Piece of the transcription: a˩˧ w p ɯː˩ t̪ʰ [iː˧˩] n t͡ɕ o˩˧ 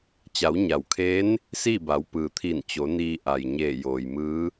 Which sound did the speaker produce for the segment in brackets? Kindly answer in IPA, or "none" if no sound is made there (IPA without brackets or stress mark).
iː˧˩